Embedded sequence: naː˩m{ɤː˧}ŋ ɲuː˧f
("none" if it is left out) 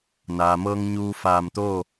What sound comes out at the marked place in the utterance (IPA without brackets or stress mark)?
ɤː˧